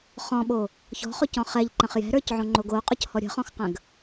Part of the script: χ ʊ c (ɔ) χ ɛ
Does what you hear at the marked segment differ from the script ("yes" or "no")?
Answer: yes